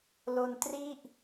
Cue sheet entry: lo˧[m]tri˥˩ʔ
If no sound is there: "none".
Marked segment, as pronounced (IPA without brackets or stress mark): n